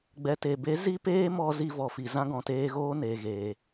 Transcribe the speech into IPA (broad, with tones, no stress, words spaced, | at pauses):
ɡ͡bɛ˨te˨be˨˦ zi˦peː˦mɔ˧ zi˧vɔ˨fi˨ zã˦ɡɔ̃˨teː˦ɣoː˦ ne˨ɣeː˨